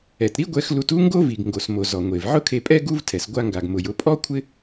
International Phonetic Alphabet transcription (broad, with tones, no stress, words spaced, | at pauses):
ɛ˩tɾi˥ɡʷɛ˧x lu˧tu˥ŋɡo˥vi˩ɡ ŋɡo˩smo˩ zɔ˩ŋʷe˩v ʕʊ˥kʰe˧pʼɛ˥ ɡu˥vtʰɛ˩s ɡʷa˧ŋɡa˩ɡmʊ˩j ʊ˧pʼɔ˥kʷʰɪ˥